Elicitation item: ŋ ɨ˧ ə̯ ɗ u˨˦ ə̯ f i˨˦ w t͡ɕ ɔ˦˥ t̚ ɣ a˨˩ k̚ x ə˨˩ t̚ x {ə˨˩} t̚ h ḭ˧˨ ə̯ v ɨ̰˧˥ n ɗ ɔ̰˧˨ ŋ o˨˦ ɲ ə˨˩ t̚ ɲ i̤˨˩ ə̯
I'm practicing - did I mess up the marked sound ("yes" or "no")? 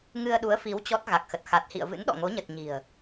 yes